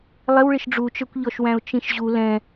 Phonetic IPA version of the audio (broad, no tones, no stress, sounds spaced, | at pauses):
lˠ ɪ w ɭ ɪ ʃ ɖ͡ʐ u t͡ʃ ə˞ kʷ ʎ ɔ ʃ w æ̃ ʊ̯ t͡ʃ ĩ ʃ ʑ u l ɛ̃